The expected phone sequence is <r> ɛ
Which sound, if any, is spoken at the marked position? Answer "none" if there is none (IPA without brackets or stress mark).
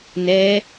n